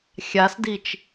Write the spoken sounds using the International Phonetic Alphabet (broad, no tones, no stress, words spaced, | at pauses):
xʲasdit͡ʃ